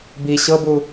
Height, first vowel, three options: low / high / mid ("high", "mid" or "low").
high